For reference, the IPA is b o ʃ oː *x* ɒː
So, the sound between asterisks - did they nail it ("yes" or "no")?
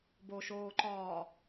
no